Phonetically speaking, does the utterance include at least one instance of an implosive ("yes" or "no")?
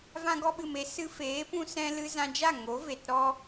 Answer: yes